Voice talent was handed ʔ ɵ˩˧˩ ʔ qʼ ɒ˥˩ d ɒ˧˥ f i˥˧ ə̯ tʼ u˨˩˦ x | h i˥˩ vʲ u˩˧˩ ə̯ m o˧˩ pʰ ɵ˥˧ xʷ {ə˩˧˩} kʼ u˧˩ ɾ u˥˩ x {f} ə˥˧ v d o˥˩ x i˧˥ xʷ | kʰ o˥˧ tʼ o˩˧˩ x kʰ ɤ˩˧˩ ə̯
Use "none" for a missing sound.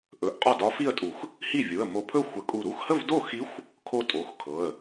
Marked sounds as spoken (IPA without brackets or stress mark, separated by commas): ə˨˩˦, h